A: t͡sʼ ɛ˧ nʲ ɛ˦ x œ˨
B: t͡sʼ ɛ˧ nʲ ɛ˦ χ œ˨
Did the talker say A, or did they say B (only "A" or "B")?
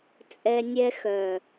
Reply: A